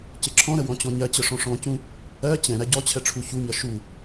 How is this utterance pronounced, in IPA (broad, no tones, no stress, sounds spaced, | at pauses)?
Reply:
c ɪ ǁʰ ɔ̃ ɾ ə w ɔ̃ t͡ɕ ɔ̃ ɲ ɜ t͡ɕ ə ʂ ɔ̃ ʂ ɔ̃ c ũ | ɜ t͡ɕ ɛ̃ ɾ æ ɟ ɔ t͡ɕʰ ɛ ʈ͡ʂʰ u ç u ɲ ʌ ʃ u